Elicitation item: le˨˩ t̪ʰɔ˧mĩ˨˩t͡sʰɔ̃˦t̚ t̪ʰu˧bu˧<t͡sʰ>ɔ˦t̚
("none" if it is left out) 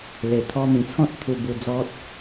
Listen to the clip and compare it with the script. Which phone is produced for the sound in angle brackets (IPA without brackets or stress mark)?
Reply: d͡z